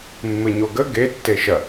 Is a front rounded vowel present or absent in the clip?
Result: absent